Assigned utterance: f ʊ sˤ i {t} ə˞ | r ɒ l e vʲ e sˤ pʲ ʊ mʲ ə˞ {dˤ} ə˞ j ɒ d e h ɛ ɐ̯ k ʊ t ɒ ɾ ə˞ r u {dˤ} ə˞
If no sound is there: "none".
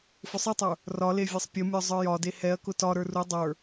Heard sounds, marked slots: tˤ, zˤ, dˤ

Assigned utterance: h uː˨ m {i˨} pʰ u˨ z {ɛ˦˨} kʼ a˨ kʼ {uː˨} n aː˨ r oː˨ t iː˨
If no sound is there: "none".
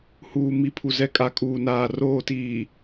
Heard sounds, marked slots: i˨, ɛ˨, uː˨

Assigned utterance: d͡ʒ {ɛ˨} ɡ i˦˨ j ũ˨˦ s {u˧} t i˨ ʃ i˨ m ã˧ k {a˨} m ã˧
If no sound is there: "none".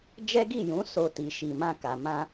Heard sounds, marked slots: ɛ˦, o˧, a˨

